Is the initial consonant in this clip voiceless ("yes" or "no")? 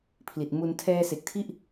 yes